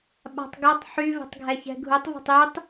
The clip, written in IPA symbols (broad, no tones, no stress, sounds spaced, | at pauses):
ɓ a̤ tˤ ɡ ɔ tˤ ħ y v ɛ̤ tˤ ɡʱ ɛ ç ɛ̤ ɡʱ u tˤ v ɔ̤ tˤ y tˤ